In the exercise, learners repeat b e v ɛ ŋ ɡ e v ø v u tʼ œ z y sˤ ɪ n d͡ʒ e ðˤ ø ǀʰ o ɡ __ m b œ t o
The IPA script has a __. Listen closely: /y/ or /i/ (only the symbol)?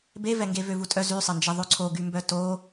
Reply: y